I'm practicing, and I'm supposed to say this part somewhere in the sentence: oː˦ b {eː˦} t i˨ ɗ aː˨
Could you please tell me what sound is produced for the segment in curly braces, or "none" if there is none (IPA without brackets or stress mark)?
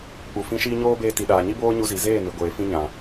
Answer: eː˧